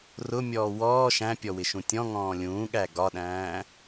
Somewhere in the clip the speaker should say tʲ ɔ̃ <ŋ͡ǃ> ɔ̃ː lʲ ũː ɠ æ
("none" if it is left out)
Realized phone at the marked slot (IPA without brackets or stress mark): ŋ